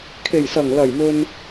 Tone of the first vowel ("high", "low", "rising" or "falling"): low